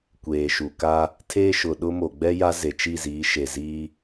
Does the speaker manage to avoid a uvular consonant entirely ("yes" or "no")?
yes